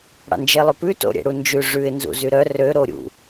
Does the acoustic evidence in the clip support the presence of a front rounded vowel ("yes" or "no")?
yes